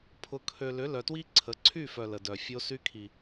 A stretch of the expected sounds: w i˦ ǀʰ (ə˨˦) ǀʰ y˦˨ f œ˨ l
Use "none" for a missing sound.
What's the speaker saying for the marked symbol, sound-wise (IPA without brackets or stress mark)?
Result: ə˨˦